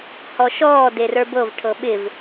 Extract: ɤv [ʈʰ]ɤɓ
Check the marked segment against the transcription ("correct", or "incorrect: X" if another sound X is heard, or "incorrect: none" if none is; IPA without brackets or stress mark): correct